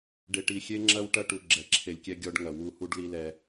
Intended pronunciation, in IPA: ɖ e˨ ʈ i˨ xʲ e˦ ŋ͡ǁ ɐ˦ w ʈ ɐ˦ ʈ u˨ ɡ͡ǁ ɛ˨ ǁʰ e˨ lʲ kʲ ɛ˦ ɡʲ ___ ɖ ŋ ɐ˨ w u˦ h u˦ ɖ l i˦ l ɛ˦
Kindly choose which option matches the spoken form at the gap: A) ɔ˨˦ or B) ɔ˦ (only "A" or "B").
B